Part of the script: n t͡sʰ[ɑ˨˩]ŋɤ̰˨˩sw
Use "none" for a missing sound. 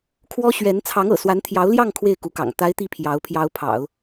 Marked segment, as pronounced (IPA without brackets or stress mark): ɑ˧˥